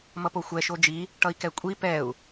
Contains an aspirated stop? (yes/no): no